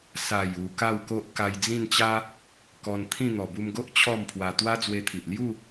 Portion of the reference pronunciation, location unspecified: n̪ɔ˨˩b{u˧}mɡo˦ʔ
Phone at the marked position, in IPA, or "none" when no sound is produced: u˧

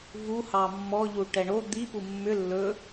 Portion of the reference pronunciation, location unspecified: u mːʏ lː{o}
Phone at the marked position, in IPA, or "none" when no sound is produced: ɵ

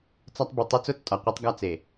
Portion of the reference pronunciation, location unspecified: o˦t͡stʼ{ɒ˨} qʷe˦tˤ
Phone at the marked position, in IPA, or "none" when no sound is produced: ɒ˨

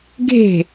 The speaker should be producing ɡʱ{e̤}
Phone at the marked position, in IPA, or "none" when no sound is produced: e̤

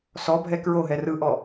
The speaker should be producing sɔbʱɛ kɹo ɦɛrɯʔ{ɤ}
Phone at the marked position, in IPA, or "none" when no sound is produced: ɔ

